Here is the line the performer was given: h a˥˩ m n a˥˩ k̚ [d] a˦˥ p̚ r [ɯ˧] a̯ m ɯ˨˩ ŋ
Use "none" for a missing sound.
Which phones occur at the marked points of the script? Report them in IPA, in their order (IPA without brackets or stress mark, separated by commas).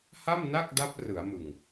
d, ɯ˩˦